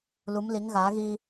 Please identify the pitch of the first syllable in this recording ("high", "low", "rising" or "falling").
rising